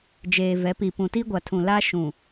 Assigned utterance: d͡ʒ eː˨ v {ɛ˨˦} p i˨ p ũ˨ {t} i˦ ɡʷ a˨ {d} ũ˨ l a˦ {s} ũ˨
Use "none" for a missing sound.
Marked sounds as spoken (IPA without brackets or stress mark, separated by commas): ɛ˨˦, t, tʰ, ʃ